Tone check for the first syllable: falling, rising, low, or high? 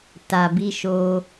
low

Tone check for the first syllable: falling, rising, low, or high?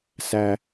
high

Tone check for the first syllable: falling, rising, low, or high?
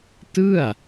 falling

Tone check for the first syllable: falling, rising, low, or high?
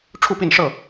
falling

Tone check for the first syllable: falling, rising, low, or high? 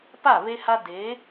falling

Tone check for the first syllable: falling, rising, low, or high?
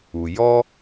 low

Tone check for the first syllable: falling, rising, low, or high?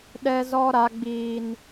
high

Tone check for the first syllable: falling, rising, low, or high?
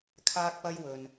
high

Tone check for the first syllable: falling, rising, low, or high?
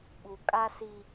low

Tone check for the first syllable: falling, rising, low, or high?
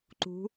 rising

